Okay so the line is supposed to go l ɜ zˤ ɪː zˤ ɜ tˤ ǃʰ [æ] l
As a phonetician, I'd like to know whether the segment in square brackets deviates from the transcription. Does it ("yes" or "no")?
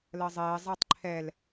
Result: yes